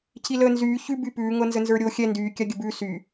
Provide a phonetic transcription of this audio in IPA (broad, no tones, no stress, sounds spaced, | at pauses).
cʰ i l əː n z yː ç ʉ b y p ʉː ŋ ɤ n z ə n z ə˞ ɾʲ o xʲ ɛ n d yː kʲ a ɡʲ ə b ʉ s y